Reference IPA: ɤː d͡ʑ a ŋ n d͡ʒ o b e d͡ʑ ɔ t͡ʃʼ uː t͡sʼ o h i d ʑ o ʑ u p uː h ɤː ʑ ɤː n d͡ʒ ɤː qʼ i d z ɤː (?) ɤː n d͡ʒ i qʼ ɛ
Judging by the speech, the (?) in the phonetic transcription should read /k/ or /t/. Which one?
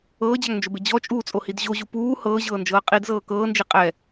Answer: k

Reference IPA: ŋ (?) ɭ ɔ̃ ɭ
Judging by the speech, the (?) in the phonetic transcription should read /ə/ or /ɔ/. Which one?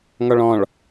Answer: ɔ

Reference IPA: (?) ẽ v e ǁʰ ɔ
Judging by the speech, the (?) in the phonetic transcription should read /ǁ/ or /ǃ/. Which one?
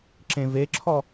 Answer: ǁ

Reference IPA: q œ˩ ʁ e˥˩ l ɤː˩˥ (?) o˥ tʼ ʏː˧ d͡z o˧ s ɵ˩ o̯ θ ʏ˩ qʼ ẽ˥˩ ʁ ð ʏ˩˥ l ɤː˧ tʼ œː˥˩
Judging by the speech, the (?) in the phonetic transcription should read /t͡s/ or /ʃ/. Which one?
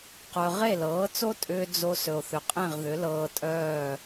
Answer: t͡s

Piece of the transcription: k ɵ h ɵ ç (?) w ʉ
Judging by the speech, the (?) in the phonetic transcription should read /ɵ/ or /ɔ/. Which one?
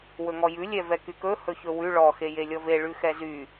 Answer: ɵ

